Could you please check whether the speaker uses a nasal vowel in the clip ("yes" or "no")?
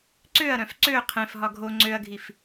yes